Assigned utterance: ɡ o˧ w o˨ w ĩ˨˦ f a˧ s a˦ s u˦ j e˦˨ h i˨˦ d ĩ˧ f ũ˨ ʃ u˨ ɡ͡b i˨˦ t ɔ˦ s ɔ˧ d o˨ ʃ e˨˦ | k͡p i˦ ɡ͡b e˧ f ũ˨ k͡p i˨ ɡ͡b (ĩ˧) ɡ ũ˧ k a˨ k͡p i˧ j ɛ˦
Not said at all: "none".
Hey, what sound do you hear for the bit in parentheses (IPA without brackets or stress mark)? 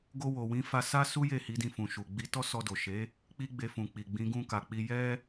ĩ˨˦